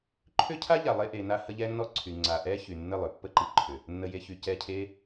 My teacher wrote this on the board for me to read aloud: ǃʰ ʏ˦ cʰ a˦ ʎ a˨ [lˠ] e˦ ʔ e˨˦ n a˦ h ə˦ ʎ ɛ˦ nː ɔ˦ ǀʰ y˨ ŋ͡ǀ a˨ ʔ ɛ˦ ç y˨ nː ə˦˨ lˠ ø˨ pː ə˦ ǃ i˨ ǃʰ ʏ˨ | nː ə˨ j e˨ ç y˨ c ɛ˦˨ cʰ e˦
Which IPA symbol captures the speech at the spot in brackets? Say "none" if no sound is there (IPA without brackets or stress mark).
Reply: lˠ